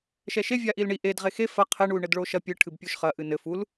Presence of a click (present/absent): absent